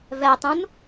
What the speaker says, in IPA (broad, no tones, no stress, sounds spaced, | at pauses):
v ɛ tˤ ũ n